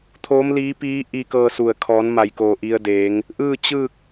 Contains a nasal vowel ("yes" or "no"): no